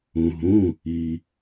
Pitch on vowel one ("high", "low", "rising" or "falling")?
low